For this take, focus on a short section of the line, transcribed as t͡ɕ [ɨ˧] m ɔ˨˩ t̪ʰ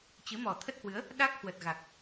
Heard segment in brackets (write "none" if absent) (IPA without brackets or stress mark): ɨ˨˦